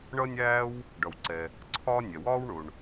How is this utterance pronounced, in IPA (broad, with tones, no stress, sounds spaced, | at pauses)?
ɳ ʌ˥ nʲ æː˥ w | ɖ ʌ˩ w ǀ ɛ˩ | ǀʰ ɒː˥ nʲ ɛ˩ w ɒː˥ w ɳ ʊ˩ ɳ